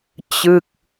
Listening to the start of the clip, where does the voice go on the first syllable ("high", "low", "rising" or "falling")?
falling